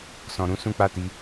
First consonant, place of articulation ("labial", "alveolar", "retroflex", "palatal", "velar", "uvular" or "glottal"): alveolar